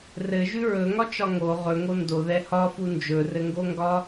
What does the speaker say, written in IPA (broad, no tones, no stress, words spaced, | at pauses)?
rɘʒʉ ɹɵŋɒt͡ʃɒ ŋo ʁɵŋo ndoðɛ hɒfu nd͡ʒɵrɘŋɡoŋɡɒ